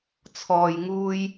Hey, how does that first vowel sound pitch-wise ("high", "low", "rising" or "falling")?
low